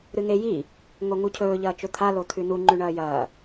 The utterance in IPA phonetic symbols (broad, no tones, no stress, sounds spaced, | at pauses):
ɾ ɨ ŋ e j i | ŋ o ŋ u cʰ ɵː ʎ ɐː t͡ʃ ɵ t̪ʰ a l o t̪ʰ ʉ n u ŋ͡ǃ ʉ ɳ ɐː j ɐː